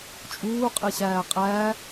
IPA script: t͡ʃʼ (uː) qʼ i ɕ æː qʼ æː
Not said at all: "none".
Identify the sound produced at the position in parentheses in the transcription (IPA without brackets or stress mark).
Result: uː